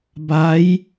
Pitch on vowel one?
rising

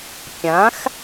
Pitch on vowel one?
rising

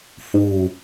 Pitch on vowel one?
low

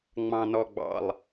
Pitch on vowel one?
low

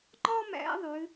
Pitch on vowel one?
high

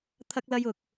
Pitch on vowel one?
high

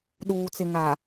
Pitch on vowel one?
low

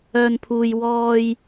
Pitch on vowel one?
low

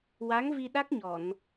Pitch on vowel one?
rising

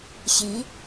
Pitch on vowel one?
rising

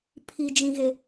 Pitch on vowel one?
high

